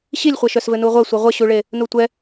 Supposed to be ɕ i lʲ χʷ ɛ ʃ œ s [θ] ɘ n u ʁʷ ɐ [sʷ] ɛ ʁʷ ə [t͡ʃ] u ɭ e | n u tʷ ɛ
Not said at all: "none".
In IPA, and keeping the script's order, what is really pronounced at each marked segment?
v, sʷ, ɕ

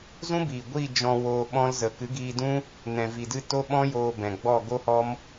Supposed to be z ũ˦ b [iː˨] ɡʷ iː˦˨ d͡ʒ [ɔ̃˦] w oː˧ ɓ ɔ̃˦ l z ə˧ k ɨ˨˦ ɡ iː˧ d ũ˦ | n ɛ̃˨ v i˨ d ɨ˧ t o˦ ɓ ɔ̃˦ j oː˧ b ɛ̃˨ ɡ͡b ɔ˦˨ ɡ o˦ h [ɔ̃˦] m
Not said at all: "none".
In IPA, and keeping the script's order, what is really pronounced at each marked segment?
iː˨, ɔ̃˧, ɔ˦

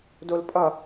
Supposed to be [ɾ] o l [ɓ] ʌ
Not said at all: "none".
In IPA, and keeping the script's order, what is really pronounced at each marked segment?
d, pʼ

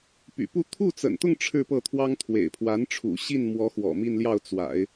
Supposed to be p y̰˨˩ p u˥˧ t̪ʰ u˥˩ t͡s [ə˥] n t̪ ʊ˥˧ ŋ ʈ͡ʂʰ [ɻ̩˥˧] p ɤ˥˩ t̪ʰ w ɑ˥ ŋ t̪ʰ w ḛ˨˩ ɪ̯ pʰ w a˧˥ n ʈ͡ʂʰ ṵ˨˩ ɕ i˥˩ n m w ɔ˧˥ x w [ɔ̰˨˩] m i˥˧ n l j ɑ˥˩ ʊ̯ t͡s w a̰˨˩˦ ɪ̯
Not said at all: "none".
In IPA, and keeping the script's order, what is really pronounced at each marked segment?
ə̰˨˩, ɻ̩˥˧, ɔ̰˨˩

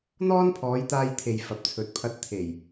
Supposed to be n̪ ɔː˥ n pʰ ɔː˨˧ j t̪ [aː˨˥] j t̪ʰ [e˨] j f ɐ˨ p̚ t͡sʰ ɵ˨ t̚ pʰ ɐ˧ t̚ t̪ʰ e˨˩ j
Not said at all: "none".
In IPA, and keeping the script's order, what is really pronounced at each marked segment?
aː˧, e˨

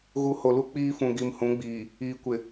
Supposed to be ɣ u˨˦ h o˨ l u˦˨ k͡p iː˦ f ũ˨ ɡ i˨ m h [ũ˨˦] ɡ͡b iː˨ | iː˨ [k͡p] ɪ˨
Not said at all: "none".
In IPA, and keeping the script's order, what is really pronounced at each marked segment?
ũ˨˦, kʷ

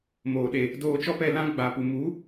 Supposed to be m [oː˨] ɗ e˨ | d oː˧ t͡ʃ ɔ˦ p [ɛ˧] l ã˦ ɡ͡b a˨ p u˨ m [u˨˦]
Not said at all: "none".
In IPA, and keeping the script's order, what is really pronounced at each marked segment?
oː˨, ɛ˧, u˨˦

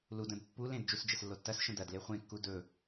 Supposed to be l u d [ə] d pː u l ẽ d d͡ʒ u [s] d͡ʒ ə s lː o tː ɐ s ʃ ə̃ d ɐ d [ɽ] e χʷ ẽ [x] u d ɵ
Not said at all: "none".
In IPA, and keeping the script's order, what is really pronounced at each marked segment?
ə̃, s, l, kː

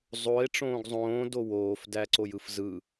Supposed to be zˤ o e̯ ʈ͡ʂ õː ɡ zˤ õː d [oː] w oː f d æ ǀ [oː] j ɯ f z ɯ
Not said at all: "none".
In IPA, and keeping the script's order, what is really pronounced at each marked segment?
o, o

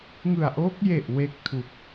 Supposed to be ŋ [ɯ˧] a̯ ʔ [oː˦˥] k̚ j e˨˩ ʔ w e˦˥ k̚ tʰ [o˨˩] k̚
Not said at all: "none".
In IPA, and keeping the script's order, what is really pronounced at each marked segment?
ɯ˨˩, oː˦˥, u˨˩

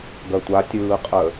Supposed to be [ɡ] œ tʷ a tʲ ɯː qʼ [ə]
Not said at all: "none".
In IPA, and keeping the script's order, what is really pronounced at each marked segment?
ɡ, ə

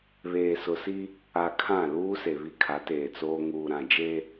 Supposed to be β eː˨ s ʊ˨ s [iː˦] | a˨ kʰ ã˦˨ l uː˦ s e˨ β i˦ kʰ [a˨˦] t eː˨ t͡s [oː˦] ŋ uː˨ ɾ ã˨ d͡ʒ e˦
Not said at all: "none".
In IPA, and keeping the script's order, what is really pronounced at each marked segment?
i˦, a˨˦, oː˦

